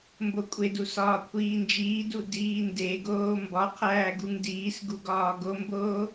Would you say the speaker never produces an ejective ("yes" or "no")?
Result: no